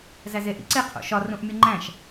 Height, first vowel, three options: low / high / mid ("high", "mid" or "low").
low